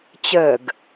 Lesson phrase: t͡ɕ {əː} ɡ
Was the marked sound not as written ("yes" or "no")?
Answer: no